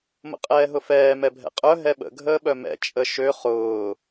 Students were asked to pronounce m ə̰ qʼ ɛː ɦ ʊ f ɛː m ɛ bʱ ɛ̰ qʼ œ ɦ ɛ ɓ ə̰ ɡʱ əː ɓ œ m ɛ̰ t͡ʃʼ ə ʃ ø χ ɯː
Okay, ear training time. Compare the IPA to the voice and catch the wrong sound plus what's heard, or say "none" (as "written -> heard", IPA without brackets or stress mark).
ɯː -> ʊː